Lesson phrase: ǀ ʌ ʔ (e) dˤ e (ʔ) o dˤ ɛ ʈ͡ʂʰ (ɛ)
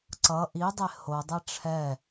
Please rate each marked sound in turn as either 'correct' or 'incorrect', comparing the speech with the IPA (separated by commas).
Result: incorrect, incorrect, correct